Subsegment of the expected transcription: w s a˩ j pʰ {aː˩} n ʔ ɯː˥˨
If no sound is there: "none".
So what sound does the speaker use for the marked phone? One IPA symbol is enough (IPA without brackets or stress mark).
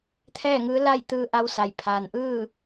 aː˩